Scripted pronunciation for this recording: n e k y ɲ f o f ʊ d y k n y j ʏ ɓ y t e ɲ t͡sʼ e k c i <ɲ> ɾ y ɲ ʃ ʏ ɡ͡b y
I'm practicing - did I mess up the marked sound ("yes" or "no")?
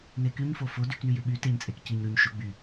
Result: no